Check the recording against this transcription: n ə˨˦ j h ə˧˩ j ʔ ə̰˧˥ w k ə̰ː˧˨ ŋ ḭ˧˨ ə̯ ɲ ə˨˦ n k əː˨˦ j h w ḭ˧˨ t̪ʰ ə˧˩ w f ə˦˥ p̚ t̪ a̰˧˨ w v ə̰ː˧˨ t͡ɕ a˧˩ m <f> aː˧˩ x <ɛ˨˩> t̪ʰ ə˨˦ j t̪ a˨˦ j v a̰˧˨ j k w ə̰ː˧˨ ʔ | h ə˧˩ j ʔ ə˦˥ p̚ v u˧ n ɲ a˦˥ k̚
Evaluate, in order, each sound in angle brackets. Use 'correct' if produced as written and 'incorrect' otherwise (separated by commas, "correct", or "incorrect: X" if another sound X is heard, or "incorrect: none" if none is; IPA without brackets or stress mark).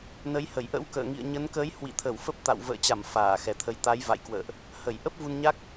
correct, correct